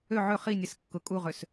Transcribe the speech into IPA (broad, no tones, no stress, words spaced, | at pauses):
ø ʕø χinʲɛs kːʊ kʼuʁøs